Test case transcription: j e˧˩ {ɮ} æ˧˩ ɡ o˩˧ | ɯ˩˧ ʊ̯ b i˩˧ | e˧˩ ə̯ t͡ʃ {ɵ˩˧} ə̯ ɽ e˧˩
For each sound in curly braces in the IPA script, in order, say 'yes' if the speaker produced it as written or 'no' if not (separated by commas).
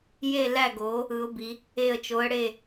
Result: no, no